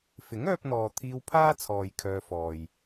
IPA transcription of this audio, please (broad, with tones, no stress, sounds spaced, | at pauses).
f ɪ˨˥ ŋ œː˧ p̚ n̪ ɔː˨ t̪ʰ iː˧ w pʰ aː˥ t͡sʰ ɔː˨ j kʰ œː˧ f ɔː˨ j